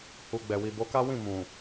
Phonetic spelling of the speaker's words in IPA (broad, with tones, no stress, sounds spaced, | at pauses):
h u˨ ɡ͡b ɛ˨ w i˨ b o˨˦ k a˦ w ĩ˦˨ m ũ˨